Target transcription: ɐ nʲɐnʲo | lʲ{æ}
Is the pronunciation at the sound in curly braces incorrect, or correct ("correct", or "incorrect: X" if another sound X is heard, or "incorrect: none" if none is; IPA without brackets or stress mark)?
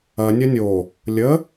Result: incorrect: ə